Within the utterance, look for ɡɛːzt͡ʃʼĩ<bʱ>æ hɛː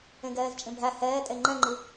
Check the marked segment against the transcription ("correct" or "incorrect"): correct